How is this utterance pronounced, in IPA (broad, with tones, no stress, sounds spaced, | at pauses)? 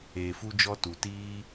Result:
eː˧ f u˦ d͡ʒ ɔ˦ t u˧ t iː˦